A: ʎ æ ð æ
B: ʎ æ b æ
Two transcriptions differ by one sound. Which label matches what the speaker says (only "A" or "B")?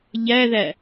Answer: A